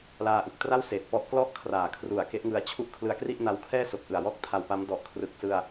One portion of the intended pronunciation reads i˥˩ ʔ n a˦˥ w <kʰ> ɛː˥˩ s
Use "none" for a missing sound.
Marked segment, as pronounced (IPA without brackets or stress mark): kʰ